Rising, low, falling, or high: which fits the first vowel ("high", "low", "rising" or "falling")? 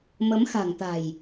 rising